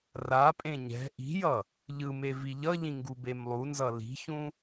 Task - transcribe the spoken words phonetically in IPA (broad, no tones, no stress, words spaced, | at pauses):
rapʼẽ ɲɛ̤ ʔi̤jʌ | ʎɯme viʎʌʎĩ ŋɡubemlˠunzʌ li̤çũ